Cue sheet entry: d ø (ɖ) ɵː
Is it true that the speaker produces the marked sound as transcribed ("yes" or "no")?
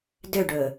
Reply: yes